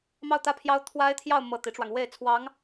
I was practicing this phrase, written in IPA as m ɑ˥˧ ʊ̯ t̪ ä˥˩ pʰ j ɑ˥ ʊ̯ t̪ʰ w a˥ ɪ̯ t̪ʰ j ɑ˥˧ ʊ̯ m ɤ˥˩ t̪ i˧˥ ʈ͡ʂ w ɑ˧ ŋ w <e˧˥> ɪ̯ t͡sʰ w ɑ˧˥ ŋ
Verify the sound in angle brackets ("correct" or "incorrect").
incorrect